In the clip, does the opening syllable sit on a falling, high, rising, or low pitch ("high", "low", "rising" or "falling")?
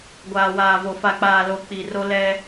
low